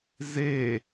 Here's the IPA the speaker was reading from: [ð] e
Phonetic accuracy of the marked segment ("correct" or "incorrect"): incorrect